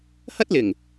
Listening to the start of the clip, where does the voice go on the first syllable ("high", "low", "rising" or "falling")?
high